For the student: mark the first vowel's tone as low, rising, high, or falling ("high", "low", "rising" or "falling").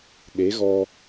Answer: rising